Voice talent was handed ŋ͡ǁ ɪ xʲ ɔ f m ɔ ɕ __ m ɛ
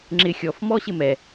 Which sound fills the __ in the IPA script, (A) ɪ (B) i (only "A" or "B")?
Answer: A